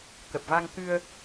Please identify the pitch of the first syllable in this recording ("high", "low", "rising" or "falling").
low